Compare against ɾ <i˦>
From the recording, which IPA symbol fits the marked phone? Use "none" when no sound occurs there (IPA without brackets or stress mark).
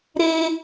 e˦